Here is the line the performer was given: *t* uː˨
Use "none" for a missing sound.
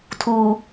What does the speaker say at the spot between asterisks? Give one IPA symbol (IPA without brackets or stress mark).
tʰ